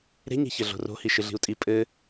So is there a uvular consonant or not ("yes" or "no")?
no